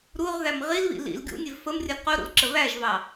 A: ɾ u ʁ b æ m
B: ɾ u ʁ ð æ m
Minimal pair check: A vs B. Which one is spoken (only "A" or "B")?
B